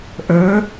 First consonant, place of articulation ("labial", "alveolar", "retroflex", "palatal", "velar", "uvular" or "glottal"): glottal